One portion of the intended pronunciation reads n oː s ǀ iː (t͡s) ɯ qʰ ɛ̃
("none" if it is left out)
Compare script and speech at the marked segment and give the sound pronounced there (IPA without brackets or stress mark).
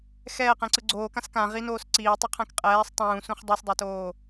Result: tˤ